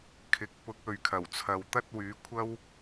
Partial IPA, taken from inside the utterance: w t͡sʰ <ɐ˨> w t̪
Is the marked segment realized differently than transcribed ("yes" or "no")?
yes